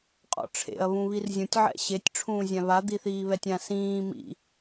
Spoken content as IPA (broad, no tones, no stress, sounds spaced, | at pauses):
qʼ ɔ̰ ʈ͡ʂʰ ḛ ɐ̯ β ũ β i r zʲ ũ tʲ ʕ ɛ̰ ɕ e tʲ ʈ͡ʂʰ ũː zʲ ã β a d̪ i θ iː β ɛ tʲ ã s ĩː m ḭ